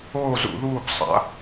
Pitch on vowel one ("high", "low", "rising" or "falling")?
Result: falling